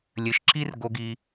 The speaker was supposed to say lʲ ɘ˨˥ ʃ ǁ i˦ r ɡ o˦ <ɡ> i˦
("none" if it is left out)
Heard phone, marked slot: ɡ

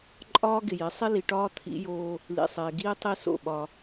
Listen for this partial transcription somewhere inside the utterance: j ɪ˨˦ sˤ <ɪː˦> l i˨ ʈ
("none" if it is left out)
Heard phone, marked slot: ɪ˦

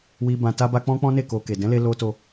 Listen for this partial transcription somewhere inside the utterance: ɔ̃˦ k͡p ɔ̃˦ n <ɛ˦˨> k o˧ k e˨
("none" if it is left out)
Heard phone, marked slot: e˦˨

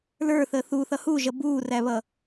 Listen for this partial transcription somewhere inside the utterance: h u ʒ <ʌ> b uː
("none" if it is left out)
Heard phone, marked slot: ʌ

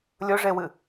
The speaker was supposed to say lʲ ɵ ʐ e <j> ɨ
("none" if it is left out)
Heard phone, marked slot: w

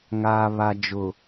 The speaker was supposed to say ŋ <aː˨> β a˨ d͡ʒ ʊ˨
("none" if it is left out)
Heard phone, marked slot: aː˨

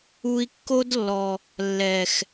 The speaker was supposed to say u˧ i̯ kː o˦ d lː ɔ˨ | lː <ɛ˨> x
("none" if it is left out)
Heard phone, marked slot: ɛ˨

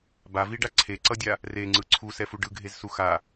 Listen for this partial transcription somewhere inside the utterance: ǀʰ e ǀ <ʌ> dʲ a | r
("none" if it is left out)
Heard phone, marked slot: ʌ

